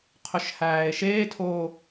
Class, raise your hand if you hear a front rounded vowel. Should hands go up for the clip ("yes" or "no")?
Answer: yes